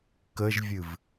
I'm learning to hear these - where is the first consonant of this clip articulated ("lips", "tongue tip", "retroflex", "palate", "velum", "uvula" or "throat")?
velum